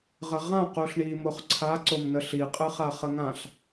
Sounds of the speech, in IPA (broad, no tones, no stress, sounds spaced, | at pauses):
ʁ ə ʁ ã q u ɬ ɳ i m o χ ǀʰ a ǀ o m n ə ɬ i qʼ ɯ χ a χ ə ŋ ã ɬ